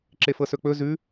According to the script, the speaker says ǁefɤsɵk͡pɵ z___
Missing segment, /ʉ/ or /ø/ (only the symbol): ʉ